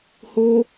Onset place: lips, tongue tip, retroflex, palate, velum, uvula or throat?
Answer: throat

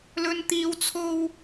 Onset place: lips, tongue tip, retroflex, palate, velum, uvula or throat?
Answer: tongue tip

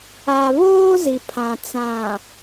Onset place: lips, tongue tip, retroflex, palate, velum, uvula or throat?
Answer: lips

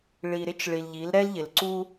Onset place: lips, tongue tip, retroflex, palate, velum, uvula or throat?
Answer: retroflex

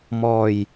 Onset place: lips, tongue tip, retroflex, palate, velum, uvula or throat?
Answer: lips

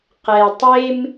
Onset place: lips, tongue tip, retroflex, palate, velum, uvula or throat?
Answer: uvula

